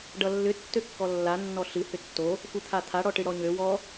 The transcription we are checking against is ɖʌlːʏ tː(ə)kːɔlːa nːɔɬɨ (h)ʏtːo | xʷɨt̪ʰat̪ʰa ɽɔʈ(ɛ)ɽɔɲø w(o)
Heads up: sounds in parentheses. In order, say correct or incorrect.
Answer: incorrect: ø, correct, incorrect: ɨ, incorrect: ɔ

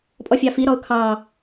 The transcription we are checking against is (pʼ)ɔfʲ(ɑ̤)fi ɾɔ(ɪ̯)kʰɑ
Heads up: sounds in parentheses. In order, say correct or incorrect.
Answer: correct, incorrect: ɑ, incorrect: ʊ̯

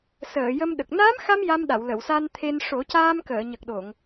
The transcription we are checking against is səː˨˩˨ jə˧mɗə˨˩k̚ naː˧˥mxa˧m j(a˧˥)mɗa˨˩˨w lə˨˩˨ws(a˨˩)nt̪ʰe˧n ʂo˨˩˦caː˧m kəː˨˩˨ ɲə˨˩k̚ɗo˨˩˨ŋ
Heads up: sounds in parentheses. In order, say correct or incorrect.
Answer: incorrect: a˧, incorrect: a˧

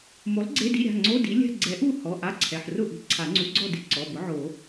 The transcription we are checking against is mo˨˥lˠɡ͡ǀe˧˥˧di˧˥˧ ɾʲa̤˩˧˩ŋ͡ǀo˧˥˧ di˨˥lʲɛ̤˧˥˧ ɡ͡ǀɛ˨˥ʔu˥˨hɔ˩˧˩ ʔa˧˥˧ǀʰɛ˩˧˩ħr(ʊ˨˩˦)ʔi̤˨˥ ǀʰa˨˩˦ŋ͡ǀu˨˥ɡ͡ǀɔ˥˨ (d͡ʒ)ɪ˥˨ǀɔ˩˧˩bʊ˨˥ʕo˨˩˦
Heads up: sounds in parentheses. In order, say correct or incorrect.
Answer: incorrect: ʊ˥˨, incorrect: d

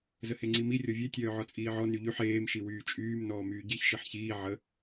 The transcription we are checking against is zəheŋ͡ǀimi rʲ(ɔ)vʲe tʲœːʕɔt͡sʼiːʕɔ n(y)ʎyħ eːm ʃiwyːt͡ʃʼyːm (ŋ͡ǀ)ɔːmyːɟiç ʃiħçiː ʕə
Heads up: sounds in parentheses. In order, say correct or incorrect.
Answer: correct, correct, incorrect: n

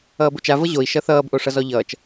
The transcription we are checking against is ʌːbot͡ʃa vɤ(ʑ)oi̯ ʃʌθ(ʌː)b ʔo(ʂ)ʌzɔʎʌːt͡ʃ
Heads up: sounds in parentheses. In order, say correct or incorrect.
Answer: correct, correct, correct

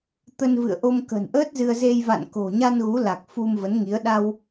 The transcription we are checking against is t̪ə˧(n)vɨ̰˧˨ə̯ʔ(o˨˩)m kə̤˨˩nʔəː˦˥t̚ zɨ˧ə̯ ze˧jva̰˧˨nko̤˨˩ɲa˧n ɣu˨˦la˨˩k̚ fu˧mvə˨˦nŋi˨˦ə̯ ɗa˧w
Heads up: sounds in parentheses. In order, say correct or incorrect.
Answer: correct, incorrect: o˧

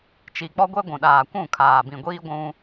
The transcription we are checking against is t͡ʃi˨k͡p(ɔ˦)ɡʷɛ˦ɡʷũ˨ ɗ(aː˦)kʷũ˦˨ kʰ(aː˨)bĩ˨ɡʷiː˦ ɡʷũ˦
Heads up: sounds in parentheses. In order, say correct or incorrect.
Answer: correct, incorrect: aː˨, correct

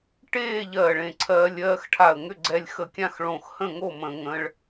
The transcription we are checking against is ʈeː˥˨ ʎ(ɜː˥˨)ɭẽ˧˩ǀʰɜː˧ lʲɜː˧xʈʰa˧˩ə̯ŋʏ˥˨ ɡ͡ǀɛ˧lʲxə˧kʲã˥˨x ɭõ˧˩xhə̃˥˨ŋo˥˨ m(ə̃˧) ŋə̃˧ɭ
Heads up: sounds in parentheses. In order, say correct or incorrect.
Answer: incorrect: ɜː˧˩, correct

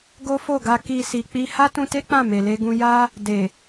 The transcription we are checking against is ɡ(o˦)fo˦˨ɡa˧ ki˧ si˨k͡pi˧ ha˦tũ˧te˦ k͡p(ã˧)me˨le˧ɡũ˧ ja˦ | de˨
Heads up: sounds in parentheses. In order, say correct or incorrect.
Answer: correct, incorrect: ã˦˨

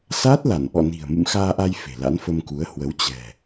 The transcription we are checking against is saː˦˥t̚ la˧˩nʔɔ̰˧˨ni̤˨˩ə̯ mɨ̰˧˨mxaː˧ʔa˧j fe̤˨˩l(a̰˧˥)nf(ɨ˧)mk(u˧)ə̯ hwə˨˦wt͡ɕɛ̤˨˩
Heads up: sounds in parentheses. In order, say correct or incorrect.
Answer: correct, incorrect: ə˧, incorrect: u˨˦

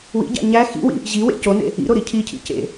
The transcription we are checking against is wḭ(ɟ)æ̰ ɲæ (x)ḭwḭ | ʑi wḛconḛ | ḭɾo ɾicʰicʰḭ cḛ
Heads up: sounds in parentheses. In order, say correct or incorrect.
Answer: correct, correct

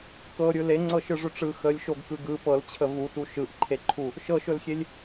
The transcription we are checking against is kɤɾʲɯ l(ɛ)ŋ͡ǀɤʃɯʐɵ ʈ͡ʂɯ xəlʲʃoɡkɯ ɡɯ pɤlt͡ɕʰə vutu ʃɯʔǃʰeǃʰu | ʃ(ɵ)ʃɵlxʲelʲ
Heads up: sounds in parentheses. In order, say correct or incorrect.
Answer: incorrect: e, incorrect: ɤ

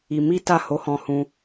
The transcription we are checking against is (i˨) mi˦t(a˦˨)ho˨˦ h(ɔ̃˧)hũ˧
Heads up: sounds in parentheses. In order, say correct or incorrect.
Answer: incorrect: i˧, correct, correct

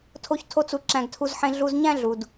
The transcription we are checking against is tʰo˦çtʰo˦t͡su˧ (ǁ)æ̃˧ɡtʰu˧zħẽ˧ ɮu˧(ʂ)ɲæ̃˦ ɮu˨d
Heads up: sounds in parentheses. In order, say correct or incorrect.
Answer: correct, incorrect: z

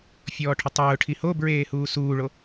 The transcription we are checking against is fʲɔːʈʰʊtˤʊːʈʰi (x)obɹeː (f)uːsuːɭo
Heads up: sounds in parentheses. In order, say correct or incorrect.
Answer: incorrect: h, incorrect: h

